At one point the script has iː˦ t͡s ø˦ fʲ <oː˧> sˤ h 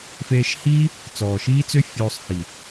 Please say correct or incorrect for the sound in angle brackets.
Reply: correct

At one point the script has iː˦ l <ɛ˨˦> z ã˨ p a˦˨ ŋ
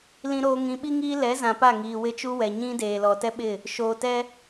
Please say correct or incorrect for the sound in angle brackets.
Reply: correct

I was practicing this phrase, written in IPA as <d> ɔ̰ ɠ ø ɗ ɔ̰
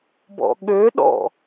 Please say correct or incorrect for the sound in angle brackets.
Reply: incorrect: b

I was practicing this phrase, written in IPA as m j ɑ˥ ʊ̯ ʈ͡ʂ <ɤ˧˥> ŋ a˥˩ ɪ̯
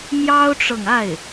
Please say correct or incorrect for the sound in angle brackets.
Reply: incorrect: ɤ˨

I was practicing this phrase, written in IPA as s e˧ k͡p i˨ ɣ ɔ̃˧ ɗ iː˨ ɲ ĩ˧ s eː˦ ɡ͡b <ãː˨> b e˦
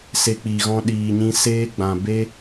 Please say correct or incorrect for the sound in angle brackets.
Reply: incorrect: ã˨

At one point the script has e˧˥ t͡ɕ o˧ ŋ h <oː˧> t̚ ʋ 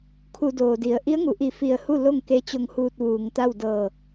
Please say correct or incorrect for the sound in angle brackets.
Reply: incorrect: uː˧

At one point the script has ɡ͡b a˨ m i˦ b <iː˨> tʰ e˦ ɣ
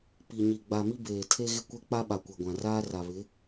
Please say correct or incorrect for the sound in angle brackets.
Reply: incorrect: eː˨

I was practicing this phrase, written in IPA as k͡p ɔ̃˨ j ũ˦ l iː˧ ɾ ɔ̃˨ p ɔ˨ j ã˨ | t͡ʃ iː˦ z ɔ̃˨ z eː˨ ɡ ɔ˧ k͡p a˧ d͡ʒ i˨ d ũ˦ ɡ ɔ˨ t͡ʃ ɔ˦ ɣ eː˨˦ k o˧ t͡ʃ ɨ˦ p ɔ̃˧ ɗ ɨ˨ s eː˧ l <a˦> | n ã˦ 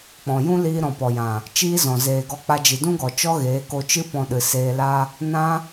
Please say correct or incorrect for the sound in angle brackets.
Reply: correct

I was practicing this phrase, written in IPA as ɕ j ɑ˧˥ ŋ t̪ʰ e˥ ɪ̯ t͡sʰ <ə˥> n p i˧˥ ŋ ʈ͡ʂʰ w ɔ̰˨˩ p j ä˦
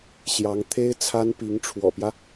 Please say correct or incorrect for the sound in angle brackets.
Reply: incorrect: a˥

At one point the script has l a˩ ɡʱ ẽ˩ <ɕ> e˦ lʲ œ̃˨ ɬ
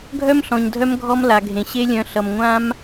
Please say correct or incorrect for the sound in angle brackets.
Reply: correct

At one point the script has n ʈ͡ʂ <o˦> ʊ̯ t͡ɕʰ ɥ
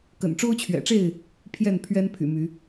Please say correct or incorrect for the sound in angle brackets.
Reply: correct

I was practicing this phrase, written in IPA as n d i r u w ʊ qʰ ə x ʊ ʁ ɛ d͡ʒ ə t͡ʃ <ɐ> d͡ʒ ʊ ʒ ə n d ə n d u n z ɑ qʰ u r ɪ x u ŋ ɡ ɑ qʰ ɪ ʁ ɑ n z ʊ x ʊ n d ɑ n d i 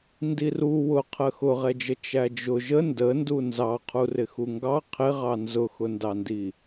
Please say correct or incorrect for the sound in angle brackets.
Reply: incorrect: æ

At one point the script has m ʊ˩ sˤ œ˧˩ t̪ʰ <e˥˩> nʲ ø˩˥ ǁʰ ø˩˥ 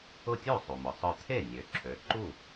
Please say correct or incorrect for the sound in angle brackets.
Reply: correct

